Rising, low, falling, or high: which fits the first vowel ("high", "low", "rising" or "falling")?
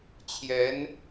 rising